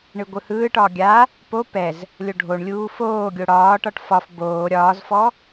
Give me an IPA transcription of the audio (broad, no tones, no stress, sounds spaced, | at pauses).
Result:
ɳ ɯ ɡʷ ɯ h ɯː ʈ ɒː ɡʲ a | p o p ɛ z | lʲ o ɖʱ o ɳ lʲ uː f oː ɡʲ o ɽ ɒː ʈ ɒ ʈ f ɒ f b oː ɾʲ ɒː z f ɔ